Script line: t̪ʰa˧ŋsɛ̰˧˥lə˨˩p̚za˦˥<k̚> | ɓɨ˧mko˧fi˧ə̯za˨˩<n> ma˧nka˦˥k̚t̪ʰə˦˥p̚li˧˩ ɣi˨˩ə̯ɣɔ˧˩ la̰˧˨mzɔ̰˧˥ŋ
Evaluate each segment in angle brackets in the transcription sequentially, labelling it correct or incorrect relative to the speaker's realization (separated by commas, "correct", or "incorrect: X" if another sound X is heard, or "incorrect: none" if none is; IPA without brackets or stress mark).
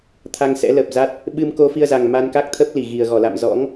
incorrect: t̚, incorrect: ŋ